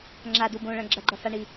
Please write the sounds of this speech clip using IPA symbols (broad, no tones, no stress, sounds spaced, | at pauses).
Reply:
ŋ͡ǁ a d u b õ ɭ ɐ̃ ɡ͡ǁ ɐ ɡ͡ǃ ɐ f a ɳ i